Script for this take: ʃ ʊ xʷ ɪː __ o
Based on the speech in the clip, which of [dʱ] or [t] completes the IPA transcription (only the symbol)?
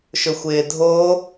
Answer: dʱ